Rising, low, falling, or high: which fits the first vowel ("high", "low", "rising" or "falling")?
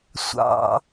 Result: low